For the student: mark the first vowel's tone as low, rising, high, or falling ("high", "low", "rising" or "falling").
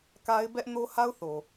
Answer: high